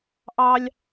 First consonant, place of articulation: glottal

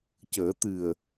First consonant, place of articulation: palatal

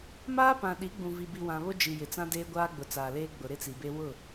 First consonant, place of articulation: labial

